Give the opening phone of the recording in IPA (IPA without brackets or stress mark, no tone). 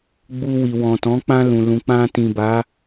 ɡ͡b